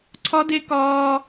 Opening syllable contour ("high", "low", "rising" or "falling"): high